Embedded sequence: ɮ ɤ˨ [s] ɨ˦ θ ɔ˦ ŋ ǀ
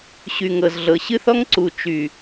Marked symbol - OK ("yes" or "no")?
no